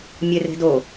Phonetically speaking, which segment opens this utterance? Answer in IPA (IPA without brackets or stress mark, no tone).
mʲ